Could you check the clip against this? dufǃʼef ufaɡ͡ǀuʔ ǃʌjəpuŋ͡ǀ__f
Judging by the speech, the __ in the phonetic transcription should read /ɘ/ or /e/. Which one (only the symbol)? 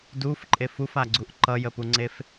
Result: e